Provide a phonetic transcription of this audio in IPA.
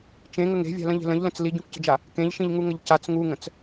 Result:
t͡ʃ ẽ ŋ ə ŋ e̤ vʲ a̤ l ə̃ ʎ e̤ l ə̃ ʎ l ə̃ t͡s l i ɟ ũ k c ə̤ d͡ʒ a | k ẽ ʎ ʃ ĩ ʎ ŋ u ŋ ə ʎ c a t͡s ŋ u ŋ ə̃ t͡s

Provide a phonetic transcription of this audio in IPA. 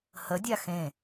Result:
h ə dʲ a x ẽ

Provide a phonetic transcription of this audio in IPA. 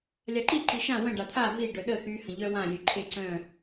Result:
lʲ a ǃ i ǃ i ʃ ã w ə̃ ɖ a t̪ʰ a v i ɖ œ ɗ ə x y h ə̃ ʎ œ w ã lʲ ø ǃʰ e ǀ œ̃

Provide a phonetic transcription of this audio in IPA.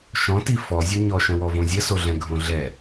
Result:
ʃ ɔ̃ t i f ɔ zʲ o ɲ ɔ ʃ ə̃ w ɔ v õ zʲ ə s o ɮ ɛ̃ ɡʱ õ ɮ ɛ

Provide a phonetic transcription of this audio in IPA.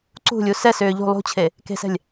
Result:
ǀ ṳ lʲ u s ɛ s ʏː ʎ ṳ lˠ ṳ t͡ɕʰ e | k e̤ s ɛ̤ lʲ

